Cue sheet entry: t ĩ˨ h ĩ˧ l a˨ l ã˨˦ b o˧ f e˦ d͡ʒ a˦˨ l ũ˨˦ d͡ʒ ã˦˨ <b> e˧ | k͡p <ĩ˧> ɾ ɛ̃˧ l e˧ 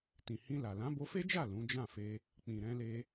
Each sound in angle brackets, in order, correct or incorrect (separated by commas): incorrect, incorrect